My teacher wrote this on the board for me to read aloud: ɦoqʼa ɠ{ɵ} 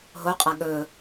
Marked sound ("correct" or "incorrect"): correct